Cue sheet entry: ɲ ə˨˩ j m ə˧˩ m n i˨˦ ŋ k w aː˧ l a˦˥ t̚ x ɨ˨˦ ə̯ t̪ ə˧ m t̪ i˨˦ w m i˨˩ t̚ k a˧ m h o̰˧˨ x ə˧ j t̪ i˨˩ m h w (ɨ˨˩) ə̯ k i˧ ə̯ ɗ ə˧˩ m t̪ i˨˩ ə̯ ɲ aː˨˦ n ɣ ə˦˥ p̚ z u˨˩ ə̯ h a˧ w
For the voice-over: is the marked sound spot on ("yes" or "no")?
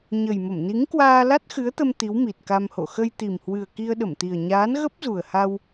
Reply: yes